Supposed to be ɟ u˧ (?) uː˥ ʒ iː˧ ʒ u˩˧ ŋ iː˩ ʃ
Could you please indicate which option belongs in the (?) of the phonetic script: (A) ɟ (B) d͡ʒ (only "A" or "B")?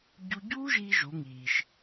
A